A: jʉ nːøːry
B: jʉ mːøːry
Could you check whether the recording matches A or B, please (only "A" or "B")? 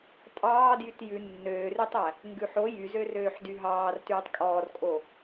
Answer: A